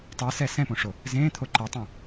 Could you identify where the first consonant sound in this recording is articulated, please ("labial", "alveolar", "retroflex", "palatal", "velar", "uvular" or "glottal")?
alveolar